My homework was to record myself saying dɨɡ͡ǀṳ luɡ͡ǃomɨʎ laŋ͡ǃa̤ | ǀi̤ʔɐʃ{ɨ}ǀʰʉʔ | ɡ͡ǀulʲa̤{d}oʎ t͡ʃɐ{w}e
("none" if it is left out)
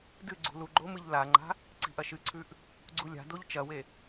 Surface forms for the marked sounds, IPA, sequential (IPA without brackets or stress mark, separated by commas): ɨ, d, w